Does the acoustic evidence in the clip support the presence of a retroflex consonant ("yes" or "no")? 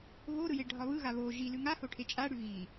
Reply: yes